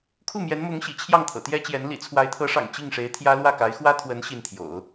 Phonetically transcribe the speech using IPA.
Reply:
kʰ u˥˩ m j ɛ˧˥ n m ʊ˧˥ ŋ ɕ ḭ˨˩ t͡ɕʰ j ɑ˥˩ ŋ t̪ʰ ɤ̰˨˩ t̪ j ɛ˥ t͡ɕ j ɛ˧˥ n l ḭ˨˩ t͡sʰ w a˧˥ ɪ̯ t̪ʰ ɤ˧˥ ʂ ɑ̰˨˩ ŋ t͡ɕ i˥˩ ŋ ʂ e˧˥ ɪ̯ t̪ʰ j ä˥ l w ä˥˩ k a˧˥ ɪ̯ x w ä˥ t̪ʰ w ə˧˥ n ɕ i˥˩ n t̪ʰ j o̰˨˩˦ ʊ̯

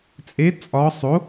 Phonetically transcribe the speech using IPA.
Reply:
t͡sʼ e t͡sʼ ɒ sˤ o

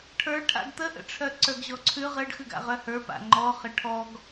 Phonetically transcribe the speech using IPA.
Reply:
ʈʰ ə˞ ʈʰ a̰ ɡ t̪ ə ʔ ə̰ ʈ͡ʂʰ œ ǀ ə˞ ɡ ʑ ɔ ǀʰ ʉ ʁ ə ɖ x ʉ ɡ a̰ ʁ œ h ə˞ p a̰ ŋ͡ǃ ɔ χ ə ʈʰ ɔ ɡ

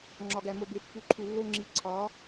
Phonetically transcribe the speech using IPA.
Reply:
ŋ͡ǁ ɒ˨ ɡ æ˨ m o˨ b e˨ pː u˨ ǃʰ u˨ lː o˦ ŋ͡ǁ i˨ ǀʰ ɒ˨˦

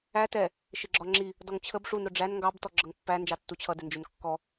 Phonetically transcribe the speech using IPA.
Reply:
æ t ɛ | ʃ ɪ ɡ͡ǁ ɒ ŋ͡ǁ i | d ɔ ŋ t͡ɕʰ ə b ʂ u n ɾ ʊ ɖ͡ʐ æ n ŋ ɡ ɑ b t ɔ ɡ͡ǁ ʌ ŋ pː æ n d͡ʒ ɑ tː u t͡ɕʰ ʌ d ɪ n d͡ʒ ʊ n kː ɔ

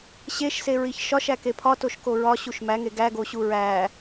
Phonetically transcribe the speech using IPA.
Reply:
ɕ e ʃ s e ɹ i ç ʃ ɒ ʃ æ k e pʰ ɒ t o ʃ k o ɹ ɒ ɕ u ʃ m æ ŋ e ɡ æ ɡ o ɕ u ɹ æ

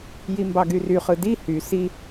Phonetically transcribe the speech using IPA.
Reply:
j i m b ɑ ɡ y r y χ ɯ d i h y s i

